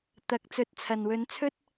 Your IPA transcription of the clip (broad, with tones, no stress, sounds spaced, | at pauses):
t̪ ɐ˨ k̚ t͡s ɵ˨˥ t̚ t͡sʰ ɐ˨˩ n w ɵ˨˥ n t͡sʰ ɵ˥ t̚